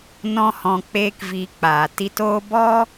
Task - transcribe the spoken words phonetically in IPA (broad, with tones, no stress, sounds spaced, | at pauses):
n ɔ̃˧ h ɔ̃˨ k͡p eː˦ k v iː˧ k͡p aː˨ t i˧ t oː˦ b ɔ˦